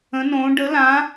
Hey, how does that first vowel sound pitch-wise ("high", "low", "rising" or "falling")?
rising